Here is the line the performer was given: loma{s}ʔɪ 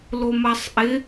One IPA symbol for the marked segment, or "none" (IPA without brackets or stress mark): sˤ